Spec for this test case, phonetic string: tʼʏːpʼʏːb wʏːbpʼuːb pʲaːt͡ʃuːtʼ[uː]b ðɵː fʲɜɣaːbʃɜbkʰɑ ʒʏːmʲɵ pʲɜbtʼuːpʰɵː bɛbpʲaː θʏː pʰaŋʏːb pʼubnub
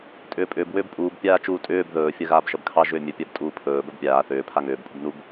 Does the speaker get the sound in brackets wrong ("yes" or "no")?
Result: yes